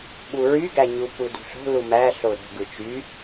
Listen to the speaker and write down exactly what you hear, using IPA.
ɓ u ɹ y ɡ æ ɲ u p u d ṳ ɬ o̤ l u m æ ɬ o ɾ o̤ ɡ ɯ t͡ʃ y

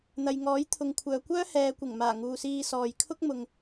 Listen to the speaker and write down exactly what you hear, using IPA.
n̪ ɐ˨ j ŋ ɔː˨˥ j t̪ʰ ʊ˨ ŋ kʷʰ œː˨ kʷ œː˥ h ɛː˨ kʷ ɪ˨˩ ŋ m aː˨˩ ŋ uː˨ s iː˧ s ɔː˨ j kʰ ʊ˥ k̚ m ʊ˨ ŋ

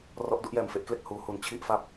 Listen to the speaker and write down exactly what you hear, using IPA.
r ɔ˦˥ ʔ d u˦˥ ʔ j ɛː˨˩ m f e˥˩ ʔ k l e˥˩ k̚ h uː˦˥ h u˧ n t͡ɕʰ i˥˩ ʔ f a˦˥ p̚

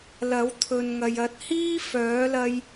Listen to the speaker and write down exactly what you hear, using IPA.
l ɐ˨˥ w t̪ʰ ɵ˨ n ŋ ɐ˨ j ɐ˨˥ t̚ h iː˥ f œː˨˥ l ɐ˧ j

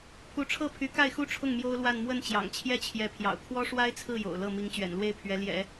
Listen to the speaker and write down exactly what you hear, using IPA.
pʰ u˧˥ ʈ͡ʂʰ ɤ˥˩ pʰ y˧˥ k a˥˩ ɪ̯ x u˥ ʈ͡ʂʰ ʊ˥˩ ŋ m j o˥ ʊ̯ l w a˥˧ n m w ə˥˩ n t͡ɕ j ɑ̰˨˩ ŋ t͡ɕʰ j ɛ˥˩ t͡ɕʰ j ɛ˧˥ pʰ j ɑ̰˨˩ ʊ̯ kʰ w ɔ˥ ʂ w a˥ ɪ̯ t͡sʰ ɹ̩˥˩ j o̰˨˩ ʊ̯ l ɤ˥˩ m i˧˥ ŋ t͡ɕ ɥ ɛ̰˨˩ n l w e˥˩ ɪ̯ pʰ ɥ ɛ˧˥ l j ɛ̰˨˩˦

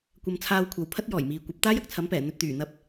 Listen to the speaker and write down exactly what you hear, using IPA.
kʷ ɐ˧ m t͡sʰ aː˧ w kʷʰ ɐ˨ w pʰ ɐ˥ t̚ j ɔː˨˩ j m iː˨ kʷ ɐ˨˥ p̚ t̪ aː˥ j ɐ˨ k̚ t͡sʰ ɐ˨˥ m p ɛː˨˩ n̪ ɵ˨ t̚ t̪ yː˨˩ n̪ ɐ˧ p̚

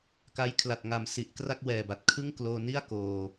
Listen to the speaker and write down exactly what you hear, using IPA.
k a˦˥ j kʰ l a˨˩ t̚ ŋ a˩˦ m s i˨˩ ʔ k r a˥˩ k̚ w ɛː˨˩ b a˨˩ t̚ kʰ ɯ˥˩ ŋ k l oː˧ n i˥˩ a̯ k oː˧

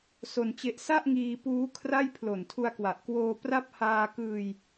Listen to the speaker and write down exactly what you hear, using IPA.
s o˧ n t͡ɕ e˦˥ ʔ s a˥˩ ʔ ŋ iː˧ p uː˦˥ kʰ r a˥˩ j pʰ l o˨˩ n tʰ u˧ a̯ k w a˨˩ ʔ k w oː˧ p r a˥˩ p̚ h aː˧ k ɯː˧ j

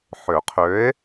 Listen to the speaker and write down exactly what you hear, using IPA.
ħ ø˨˩˦ qʰ ø˨˥ e̯

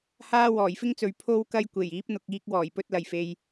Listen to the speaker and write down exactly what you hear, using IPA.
h aː˥ w ɔː˨˩ j f ɪ˥ ŋ t͡s ɵ˨ ɥ pʰ o˥ w k ɐ˥ j kʷ e˨˩ j iː˨˥ p̚ n̪ ʊ˨ k̚ iː˧ k̚ w ɔː˨˩ j p ɵ˧ t̚ l ɐ˨˩ j f e˨ j

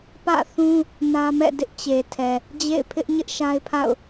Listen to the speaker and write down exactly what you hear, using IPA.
p ä̰˦˨ θ ũ˦ | n ä˦ m ɛ̰˦˨ d ɪ˦ ʔ t͡ɕ e˨ tʰ ɛ˨ | d͡ʑ ḛ˦˨ ɪ̯ pʰ ɪ˦ ʔ ɲ ɪ˦ ʔ ʃ a˦ ɪ̯ pʰ a̰˦˨ ʊ̯

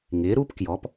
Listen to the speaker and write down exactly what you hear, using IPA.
ŋ ɪː˨˥ ɾ uː˥ p k j ɔ˨˥ p

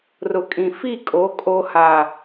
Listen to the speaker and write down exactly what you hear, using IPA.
r ʊ˨ kʼ ĩ˨ f i˦˨ kʼ o˨˦ kʼ o˨ h a˨

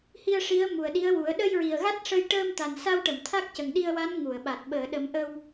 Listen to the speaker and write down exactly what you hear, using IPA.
h i˧ ə̯ ʂ i˧˥ ə̯ m u˨˩ ə̯ ɗ i˧˥ ə̯ w u˨˩˦ ə̯ ɗ ə˧ j ɹ i˨˩ ə̯ ɣ a˦˥ t̚ ʂ ə˧ j ʈ əː˧ m t̪ a˨˩ n s a˧ w ʈ ə˨˩˨ m t̪ʰ a˦˥ k̚ c ə˨˩ ŋ ɗ i˧ ə̯ w a˧˥ n ŋ u˨˩˨ ə̯ ɓ a˨˩ t̚ ɓ əː˨˩˨ ɗ ə˨˩˦ m ʔ ə˧ w

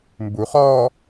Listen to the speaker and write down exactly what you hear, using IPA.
m b u χ ɔː

